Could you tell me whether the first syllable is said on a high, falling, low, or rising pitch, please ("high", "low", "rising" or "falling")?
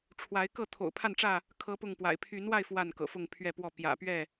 rising